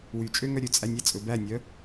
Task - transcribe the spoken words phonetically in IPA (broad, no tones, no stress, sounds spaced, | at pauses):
w y t͡ʃʼ ø ŋ œ ɾʲ ɵ t͡sʼ æ nʲ æ t͡sʼ ɵ b æ nʲ œ